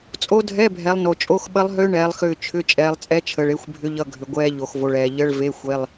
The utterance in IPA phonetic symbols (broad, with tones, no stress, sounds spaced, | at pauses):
t͡sʼ o˦˥ dʱ ɛ˧˥˧ bʱ ɛ˨˦ lˠ n o˨ t͡ʃʼ o˧˥˧ x ɓ ə˦˥ lˠ ɦ ʏː˦˥ ɳ ɛː˨˦ lˠ x ʏː˦˨ t͡ʃʰ ʏ˧˥˧ t͡ʃʼ ɛː˨˦ lˠ t͡sʼ ɛ˦˥ t͡ʃʰ əː˨ ɭ e˦˥ xʷ bʱ ʏ˦˥ ʎ ʌ˧˥˧ ɡʱ ʏ˨ ɡʷ ɛː˦˥ ʎ o˨ x v o˨ ɭ ɛː˨ ʎ ə˧˥˧ ɭ v e˧˥˧ xʷ e˧˥˧ lˠ